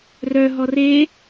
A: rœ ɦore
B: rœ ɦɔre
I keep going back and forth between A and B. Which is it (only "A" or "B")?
B